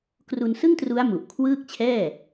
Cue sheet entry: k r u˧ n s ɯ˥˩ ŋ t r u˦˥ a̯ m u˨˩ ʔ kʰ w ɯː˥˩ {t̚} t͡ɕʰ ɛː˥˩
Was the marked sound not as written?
yes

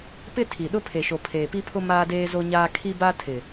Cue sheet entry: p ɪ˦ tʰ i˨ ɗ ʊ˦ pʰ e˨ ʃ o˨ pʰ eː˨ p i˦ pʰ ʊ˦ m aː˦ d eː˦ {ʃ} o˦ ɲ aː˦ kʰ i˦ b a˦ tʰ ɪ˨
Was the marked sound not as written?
yes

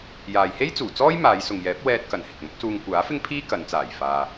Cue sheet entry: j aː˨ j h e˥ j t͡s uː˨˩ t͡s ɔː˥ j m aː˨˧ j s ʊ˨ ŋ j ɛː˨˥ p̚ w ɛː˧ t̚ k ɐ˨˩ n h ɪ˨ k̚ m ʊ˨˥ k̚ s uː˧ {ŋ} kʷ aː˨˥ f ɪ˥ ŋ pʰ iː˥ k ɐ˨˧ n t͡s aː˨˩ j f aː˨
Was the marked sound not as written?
no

